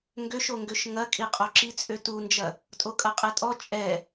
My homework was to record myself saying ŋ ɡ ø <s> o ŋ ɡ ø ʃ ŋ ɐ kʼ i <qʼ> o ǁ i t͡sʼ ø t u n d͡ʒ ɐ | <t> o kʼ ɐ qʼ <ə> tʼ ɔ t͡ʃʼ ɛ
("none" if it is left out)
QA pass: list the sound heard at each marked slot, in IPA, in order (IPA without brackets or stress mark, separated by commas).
ʃ, qʼ, tʼ, ɛ